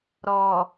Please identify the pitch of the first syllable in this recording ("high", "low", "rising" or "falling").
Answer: low